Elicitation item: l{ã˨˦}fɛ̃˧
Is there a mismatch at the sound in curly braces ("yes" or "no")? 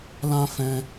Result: yes